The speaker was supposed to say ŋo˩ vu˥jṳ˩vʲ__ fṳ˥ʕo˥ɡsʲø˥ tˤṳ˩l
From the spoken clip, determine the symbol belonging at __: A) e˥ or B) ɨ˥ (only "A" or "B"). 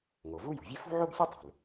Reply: A